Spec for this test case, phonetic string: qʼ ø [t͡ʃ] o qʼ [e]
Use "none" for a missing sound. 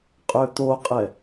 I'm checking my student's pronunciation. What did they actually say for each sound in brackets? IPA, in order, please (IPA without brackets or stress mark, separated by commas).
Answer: t̪, ɛ